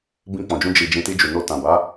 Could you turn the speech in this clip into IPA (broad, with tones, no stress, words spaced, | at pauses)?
bĩ˧k͡pɔ̃˨d͡ʒũ˧ d͡ʒi˨d͡ʒĩ˨ ti˧d͡ʒu˨no˧ tã˨ba˨˦